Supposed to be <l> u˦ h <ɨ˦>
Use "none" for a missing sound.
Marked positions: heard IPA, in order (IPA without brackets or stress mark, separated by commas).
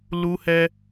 l, ɛ˦